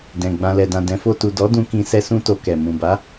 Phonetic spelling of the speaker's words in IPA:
d ɛ̃˨ ɡ͡b ã˨ l ɛ˨ d ã˨ d ɛ̃˨˦ f o˧ t u˨ d ɔ˨˦ d ũ˧ k ĩ˧ s ɛ˦ s ũ˦ t o˧ k ɛ˨ m ũ˨ b a˨˦

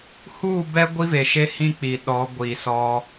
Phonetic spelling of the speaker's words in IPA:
h uː˦˨ b ɛ˦ ɡʷ i˦ v e˨ ʃ e˦ h ĩ˦ k͡p i˨ ɗ ɔ˨˦ ɡʷ i˨ s ɔ˦

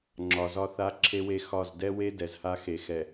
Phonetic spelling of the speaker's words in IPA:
ŋ͡ǁ ɒ˨ z ɒ˦ θ a˦ ǁʰ e˦ w e˦ x ɒ˦˨ z d ɛ˦ w e˦ d ɛ˨ z h a˦ x e˨ x ɛ˨

